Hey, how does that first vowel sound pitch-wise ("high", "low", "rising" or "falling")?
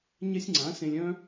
high